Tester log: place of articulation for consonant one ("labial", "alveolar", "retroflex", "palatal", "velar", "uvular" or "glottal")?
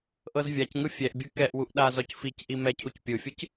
glottal